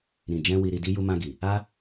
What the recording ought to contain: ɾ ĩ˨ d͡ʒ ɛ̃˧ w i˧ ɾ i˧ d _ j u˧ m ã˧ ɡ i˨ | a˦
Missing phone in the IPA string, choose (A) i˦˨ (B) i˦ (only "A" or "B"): B